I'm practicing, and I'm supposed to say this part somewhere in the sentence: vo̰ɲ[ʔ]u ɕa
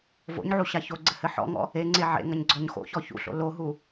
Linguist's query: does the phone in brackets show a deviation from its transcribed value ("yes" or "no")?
yes